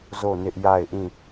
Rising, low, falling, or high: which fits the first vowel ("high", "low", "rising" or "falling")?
falling